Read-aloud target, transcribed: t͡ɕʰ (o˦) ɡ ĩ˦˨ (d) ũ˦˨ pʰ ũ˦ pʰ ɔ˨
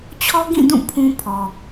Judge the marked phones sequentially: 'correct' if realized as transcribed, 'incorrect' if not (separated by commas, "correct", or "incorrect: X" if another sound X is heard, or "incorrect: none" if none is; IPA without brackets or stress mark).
incorrect: ɔ˦, correct